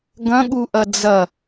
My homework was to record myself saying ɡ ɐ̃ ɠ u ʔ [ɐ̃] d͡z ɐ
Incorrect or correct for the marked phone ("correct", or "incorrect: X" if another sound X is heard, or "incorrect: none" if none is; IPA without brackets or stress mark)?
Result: incorrect: ɐ